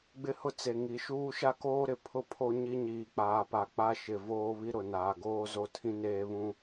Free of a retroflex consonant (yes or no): yes